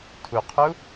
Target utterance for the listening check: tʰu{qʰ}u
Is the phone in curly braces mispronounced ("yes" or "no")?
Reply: no